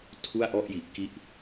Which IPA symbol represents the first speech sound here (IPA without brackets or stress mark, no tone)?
tʰ